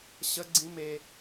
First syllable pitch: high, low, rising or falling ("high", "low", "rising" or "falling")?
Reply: high